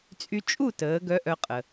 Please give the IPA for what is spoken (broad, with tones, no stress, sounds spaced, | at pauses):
t͡sʼ y˧ t͡ʃʼ u˥˨ t əː˩˥ ɡ œ˧˥ ʔ œ˧ qʼ ə˩